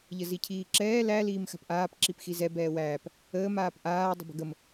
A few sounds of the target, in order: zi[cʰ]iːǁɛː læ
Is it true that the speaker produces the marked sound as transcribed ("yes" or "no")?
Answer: yes